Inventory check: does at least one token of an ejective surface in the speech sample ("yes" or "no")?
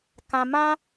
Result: no